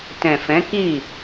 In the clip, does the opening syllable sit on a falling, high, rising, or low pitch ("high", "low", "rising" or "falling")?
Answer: low